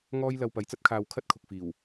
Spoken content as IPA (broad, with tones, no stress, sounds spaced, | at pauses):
ŋ ɔː˥ j l ɐ˧ w p ɐ˨˧ j t͡s ɐ˥ t̚ kʰ aː˧ w kʰ ɐ˥ t̚ kʰ ʊ˨ k̚ f iː˨˩ w